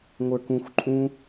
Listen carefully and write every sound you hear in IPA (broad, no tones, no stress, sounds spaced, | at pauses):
ŋʷ ə˞ k ũ xʷ ǃʼ ũ